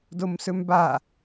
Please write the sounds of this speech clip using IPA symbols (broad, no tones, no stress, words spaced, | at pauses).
domsɵmba